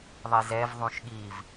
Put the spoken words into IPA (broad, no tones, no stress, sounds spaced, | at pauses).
ðˤ i z ɛ v ðˤ ũ ʃ ɠ i v